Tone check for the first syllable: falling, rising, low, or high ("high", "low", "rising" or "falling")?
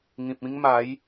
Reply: low